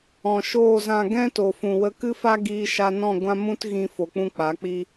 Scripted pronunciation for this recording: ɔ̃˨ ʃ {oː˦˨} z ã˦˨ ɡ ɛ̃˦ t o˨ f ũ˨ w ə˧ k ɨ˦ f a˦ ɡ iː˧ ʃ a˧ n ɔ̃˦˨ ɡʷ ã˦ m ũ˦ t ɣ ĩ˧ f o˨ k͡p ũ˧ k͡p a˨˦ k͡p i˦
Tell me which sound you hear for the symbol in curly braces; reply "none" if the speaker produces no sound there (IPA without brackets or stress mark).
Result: oː˦˨